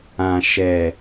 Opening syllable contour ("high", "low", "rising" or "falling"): low